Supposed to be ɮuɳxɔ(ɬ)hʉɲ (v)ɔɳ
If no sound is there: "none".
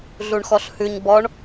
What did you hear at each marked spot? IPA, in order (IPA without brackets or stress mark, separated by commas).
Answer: ɬ, b